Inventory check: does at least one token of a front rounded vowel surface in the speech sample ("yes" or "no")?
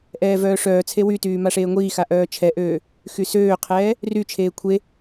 yes